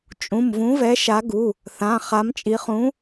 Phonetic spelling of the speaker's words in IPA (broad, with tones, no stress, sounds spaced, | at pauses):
t͡ʃʼ ũ˩˧˩ m v ũ˨˦ v ɛ˨˦ ʃ a˨˦ ɡ u˩˧˩ | θ ã˩˧˩ χ a˨˦ m t͡ʃʼ i˨˦ χ ũ˨˦